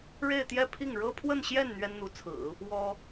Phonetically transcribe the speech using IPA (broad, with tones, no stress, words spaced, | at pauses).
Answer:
ɻe˥˧ɪ̯t̪jɛ˥˧pʰi˥˩ŋ ɻɤ˥pʰwə˥˧nɕjɛ˥˩n n̪ɥɛ˥nn̪u˧˥t͡sʰɹ̩˨˩˦ | wɔ˥